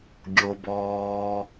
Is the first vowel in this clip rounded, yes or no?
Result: yes